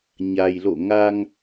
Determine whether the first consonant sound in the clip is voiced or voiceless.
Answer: voiced